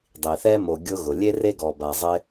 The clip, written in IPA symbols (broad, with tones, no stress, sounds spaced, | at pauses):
dˤ i˩ θ ɛ˦ m o˨ ɡʲ ʊ˦ ɣ ʊ˩ lʲ e˥ r e˥ ɡ ɔ˨ b a˨ zˤ ɪ˦